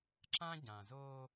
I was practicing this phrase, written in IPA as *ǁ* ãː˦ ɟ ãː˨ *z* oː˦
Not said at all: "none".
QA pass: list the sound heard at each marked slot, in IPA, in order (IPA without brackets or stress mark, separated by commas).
ǁ, z